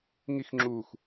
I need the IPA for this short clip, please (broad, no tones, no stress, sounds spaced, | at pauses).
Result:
ŋ i x ŋ͡ǁ uː x